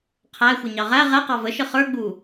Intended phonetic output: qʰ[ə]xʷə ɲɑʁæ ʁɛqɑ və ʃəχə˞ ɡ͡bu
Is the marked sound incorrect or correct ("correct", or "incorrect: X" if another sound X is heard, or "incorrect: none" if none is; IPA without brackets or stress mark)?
incorrect: æ